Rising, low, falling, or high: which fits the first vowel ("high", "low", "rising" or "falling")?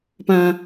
low